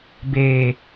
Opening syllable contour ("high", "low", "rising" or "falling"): low